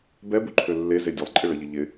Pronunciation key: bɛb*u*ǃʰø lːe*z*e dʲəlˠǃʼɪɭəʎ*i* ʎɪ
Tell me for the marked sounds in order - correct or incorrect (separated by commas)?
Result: correct, correct, incorrect